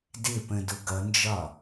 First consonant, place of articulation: alveolar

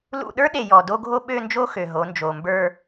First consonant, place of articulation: alveolar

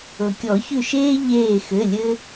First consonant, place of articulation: velar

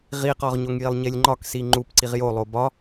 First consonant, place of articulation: uvular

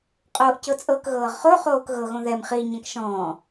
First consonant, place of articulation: uvular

